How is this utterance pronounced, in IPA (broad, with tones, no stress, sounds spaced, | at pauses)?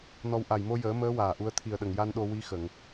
n ɔ˧ w ʔ a˨˩ j m o˧ j əː˨˩˦ m əː˧˥ w aː˨˩ ʔ u˧ ə̯ t̪ʰ i˨˩ ə̯ ɗ ə˨˩ ŋ j a˧ n ɗ o˧ w i˧˥ x ə˨˩˨ ŋ